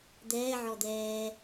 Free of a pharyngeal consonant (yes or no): no